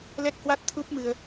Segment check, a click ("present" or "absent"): absent